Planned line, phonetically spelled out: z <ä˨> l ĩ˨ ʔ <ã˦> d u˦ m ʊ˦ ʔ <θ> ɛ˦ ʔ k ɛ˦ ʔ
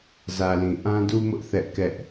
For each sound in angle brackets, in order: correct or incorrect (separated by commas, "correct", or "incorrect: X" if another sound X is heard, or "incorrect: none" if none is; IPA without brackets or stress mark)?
correct, correct, correct